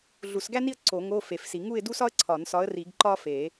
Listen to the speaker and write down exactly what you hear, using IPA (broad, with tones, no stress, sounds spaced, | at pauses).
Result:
ɮ u˨˩˦ s ɡ æ˥ n i˥˧ ə̯ ǀ o˨˩˦ ŋ o˧˥˧ f e˨˩˦ f s i˨˩˦ ŋ u˥˧ ɪ̯ d u˥ s ɒ˥ ə̯ ǀʰ ɒ˨˩˦ n s ɒ˨˥ ə̯ r i˨˩˦ ɡ ǃ ɒ˥ f e˨˩˦